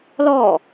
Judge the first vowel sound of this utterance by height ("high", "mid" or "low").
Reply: mid